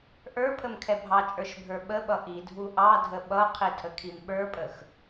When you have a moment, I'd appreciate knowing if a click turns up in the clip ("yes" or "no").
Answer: no